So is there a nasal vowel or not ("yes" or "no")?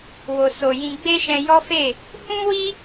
yes